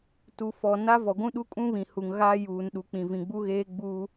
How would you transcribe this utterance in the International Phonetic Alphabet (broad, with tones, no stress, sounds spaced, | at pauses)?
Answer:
t u˨ f ɔ˨ n a˦ v ɔ˨ ɡʷ ũ˦ ɗ u˦ kʼ ũ˦ β ĩ˨ h u˨ ŋ ɣ aː˦ j uː˨ n ɗ u˨ k͡p ĩ˨ v ĩ˨ ɡ͡b u˦ ɣ eː˦ ɡ͡b u˦